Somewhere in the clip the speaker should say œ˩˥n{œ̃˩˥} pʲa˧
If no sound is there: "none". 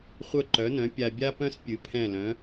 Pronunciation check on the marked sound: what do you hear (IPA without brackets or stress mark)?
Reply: œ̃˩˥